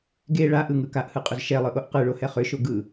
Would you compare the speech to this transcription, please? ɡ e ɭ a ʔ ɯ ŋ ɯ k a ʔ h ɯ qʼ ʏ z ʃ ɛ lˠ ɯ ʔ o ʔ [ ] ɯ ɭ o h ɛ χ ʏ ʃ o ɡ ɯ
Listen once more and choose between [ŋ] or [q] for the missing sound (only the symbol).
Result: q